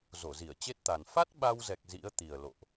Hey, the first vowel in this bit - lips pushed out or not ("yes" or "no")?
yes